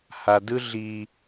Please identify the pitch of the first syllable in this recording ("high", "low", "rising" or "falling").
low